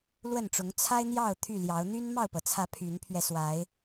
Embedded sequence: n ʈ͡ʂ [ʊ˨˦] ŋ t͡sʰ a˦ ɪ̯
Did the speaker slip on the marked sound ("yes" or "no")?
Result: no